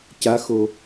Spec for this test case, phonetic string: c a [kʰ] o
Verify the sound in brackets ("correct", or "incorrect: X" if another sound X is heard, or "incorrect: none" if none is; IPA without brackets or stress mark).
incorrect: x